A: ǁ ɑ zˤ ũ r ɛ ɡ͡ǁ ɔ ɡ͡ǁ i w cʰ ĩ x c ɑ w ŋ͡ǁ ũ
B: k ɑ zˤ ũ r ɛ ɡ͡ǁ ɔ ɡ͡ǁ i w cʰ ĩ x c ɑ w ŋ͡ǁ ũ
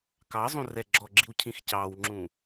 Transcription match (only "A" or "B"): B